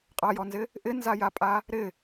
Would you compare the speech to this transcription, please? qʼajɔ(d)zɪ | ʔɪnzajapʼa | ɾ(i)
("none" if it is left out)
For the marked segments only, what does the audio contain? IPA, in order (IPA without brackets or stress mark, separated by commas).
n, ɪ